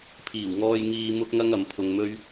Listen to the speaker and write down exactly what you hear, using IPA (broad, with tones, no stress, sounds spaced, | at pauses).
pʰ iː˨˩ w ŋ ɔː˧ j ŋ iː˧ m ʊ˥ k̚ ŋ ɐ˥ ŋ ɐ˨˥ m pʰ ʊ˧ ŋ m ɵ˥ ɥ